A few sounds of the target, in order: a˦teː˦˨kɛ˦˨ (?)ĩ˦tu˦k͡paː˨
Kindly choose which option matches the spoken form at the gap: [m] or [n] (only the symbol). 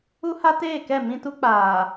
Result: m